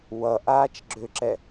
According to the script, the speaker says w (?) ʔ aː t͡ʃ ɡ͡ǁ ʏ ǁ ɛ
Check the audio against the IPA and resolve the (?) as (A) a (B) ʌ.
B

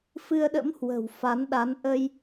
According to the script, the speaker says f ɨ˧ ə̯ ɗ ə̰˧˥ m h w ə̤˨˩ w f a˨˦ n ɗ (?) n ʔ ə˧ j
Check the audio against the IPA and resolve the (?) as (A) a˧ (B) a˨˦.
B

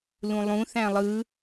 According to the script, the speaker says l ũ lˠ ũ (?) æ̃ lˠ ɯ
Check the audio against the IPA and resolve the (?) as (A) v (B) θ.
B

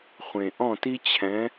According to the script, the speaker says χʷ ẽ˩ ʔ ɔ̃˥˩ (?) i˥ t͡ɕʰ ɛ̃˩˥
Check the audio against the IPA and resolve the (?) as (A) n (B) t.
B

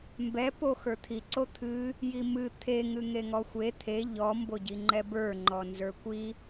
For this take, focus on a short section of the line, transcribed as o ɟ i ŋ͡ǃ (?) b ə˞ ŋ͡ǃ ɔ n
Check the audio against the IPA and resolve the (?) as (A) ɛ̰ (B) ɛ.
B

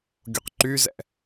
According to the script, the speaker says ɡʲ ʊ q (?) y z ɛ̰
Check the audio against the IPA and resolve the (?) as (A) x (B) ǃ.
B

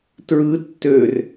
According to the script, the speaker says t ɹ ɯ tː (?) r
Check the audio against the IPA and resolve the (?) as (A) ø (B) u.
A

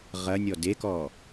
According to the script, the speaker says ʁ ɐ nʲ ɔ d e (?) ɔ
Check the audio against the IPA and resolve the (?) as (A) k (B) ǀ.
A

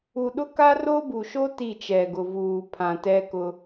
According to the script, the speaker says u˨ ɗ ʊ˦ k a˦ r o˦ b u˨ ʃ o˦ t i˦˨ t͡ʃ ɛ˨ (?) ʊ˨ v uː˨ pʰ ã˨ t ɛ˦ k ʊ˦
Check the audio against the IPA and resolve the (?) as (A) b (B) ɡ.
B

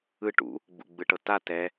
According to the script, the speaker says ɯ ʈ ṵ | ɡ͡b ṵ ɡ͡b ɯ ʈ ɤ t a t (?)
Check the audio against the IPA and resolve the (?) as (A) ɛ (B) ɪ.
A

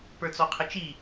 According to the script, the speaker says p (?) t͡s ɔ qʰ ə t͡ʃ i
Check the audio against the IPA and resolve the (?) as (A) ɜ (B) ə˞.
B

